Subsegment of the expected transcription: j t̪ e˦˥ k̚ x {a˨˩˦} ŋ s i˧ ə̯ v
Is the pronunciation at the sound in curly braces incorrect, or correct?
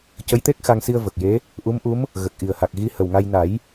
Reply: incorrect: a˧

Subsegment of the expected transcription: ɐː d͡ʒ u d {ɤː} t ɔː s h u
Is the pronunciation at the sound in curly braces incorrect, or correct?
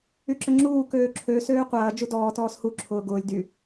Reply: incorrect: ɔː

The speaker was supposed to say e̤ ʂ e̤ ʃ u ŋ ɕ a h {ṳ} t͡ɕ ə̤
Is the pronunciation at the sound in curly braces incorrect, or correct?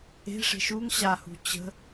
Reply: correct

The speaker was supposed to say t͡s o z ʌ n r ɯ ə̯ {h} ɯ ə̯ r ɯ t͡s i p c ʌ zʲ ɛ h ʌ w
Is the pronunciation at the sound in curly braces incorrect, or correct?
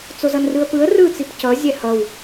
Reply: incorrect: p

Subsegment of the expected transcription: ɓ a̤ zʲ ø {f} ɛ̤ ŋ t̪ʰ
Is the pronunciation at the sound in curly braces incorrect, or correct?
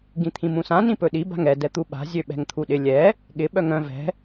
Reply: incorrect: ɓ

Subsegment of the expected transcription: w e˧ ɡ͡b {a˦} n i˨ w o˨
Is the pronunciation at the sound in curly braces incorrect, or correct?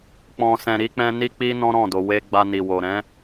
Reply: incorrect: a˧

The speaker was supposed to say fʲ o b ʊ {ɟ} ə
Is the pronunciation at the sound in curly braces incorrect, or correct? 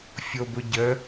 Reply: correct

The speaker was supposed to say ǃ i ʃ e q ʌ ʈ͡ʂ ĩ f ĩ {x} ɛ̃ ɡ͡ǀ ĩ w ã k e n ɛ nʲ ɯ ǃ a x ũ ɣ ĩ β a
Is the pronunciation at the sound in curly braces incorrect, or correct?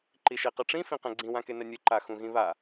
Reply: incorrect: q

